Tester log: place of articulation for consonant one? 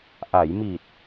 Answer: glottal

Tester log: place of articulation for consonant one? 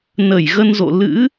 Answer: alveolar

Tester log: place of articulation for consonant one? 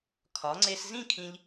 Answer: velar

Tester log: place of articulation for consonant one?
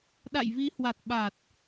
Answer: alveolar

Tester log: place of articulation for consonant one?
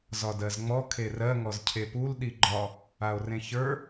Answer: alveolar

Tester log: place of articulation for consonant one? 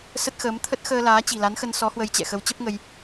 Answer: alveolar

